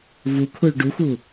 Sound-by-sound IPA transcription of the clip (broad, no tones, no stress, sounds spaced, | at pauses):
v u kʰ u ɭ ɖ u x u